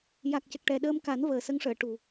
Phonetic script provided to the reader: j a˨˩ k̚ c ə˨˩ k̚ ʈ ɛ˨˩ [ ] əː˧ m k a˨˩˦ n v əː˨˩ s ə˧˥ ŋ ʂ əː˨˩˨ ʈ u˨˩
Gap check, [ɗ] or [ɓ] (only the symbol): ɗ